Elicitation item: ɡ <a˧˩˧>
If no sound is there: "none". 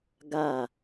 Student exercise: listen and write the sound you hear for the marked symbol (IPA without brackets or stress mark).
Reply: a˥˩